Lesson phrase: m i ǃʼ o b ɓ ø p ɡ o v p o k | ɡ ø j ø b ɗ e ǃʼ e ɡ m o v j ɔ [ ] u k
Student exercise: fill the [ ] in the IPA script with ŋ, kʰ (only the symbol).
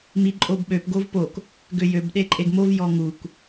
ŋ